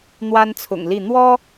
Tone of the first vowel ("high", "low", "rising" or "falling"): high